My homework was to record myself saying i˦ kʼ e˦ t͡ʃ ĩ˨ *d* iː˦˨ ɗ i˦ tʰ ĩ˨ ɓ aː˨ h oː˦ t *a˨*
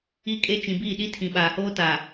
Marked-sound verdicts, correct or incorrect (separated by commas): incorrect, correct